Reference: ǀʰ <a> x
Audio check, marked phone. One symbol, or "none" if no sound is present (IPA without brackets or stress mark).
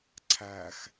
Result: æ